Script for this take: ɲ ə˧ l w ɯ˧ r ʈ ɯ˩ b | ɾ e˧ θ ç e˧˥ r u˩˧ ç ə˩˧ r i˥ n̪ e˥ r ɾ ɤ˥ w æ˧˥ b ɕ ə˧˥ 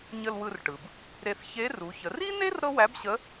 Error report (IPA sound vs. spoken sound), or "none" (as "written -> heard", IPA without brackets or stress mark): none